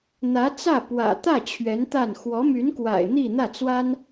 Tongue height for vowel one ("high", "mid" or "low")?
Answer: low